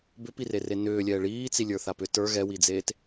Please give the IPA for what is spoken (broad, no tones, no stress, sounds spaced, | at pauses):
b ʏ p i r e r e n ʏː lʲ ɛː ɭ iː t͡s i lʲ ə˞ θ a p ʏ t ə˞ ɣ ɛ w i d͡z eː t